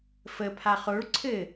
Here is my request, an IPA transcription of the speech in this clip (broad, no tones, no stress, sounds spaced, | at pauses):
f ə pʰ a χ o ɭ ǀʰ ɘ